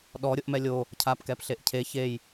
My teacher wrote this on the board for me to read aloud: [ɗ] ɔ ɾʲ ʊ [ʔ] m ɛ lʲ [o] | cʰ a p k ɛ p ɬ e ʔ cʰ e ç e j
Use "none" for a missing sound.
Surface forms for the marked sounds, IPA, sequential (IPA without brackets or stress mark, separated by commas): ɗ, ʔ, o